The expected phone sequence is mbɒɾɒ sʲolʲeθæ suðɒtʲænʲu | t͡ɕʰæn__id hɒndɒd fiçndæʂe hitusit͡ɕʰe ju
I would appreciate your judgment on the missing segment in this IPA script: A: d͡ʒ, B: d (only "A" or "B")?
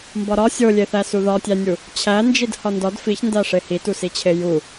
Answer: A